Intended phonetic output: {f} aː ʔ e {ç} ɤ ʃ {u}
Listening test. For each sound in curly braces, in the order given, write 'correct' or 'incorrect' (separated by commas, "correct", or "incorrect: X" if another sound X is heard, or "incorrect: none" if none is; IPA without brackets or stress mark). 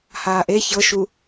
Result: incorrect: h, correct, correct